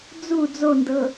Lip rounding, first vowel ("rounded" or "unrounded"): rounded